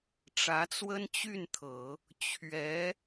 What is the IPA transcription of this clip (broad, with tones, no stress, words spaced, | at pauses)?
ʈ͡ʂä˧˥t͡swə˥nt͡ɕy˥˩nt̪ʰɤ˨˩˦ | t͡ɕʰɥɛ˧˥